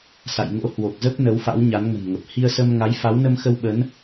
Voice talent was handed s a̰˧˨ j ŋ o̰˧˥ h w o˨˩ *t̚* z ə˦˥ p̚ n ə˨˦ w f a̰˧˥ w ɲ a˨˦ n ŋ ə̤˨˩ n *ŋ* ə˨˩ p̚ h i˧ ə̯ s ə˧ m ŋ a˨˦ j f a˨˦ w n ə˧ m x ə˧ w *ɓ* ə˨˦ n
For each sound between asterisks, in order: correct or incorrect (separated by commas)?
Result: incorrect, correct, correct